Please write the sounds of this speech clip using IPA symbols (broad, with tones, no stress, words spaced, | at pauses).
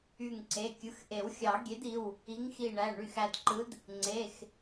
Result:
y˧˩ŋǀe˩˧˩kʲɯ˩˧˩x ʔe˨˩˦wxʲɑ˨˩˦ɡʲe˨˥di˩˧˩w | i˨˥ŋxi˧˩ɳæ˩˧˩ ɳy˧˩xæ˧˩dǃɯ˨˥d | ŋ͡ǀe˩˧˩x